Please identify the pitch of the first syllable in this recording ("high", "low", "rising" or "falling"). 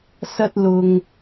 high